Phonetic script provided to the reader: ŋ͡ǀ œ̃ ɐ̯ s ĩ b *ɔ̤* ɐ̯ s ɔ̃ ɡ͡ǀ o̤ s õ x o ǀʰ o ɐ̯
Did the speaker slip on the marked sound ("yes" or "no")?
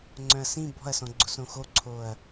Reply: no